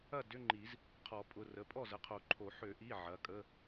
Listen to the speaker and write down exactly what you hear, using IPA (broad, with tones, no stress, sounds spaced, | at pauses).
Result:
ɐ˥˩ d ʏ˧˥˧ ŋ͡ǃ i˨˩˦ z | qʰ ɔ˨˩˦ pʼ ʊ˩˧˩ r ə˩˧˩ pʼ ɔ˥˩ z ə˩˧˩ qʰ o˨˩˦ ǃʰ o˨˩˦ ħ ø˨˩˦ ʔ i˩˧˩ ʕ ɐ˩˧˩ kʼ ə˧˥˧